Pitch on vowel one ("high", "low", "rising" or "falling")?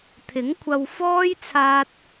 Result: rising